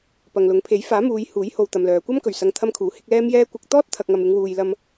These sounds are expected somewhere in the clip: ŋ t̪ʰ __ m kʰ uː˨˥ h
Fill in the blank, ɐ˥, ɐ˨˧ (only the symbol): ɐ˥